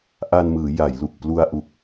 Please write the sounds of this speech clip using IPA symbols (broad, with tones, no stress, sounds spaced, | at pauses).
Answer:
ʔ a˧ n m ɯː˩˦ j a˩˦ j l u˨˩ k̚ p l u˧ a̯ ʔ u˨˩ k̚